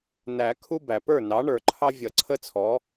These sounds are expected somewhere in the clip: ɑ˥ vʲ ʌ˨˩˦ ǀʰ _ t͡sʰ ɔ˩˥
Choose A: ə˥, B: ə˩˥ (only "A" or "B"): A